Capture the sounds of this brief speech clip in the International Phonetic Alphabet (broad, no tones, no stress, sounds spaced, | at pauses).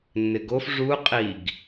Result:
nː ɪ ɡ o f ʐ u qʼ i ɡ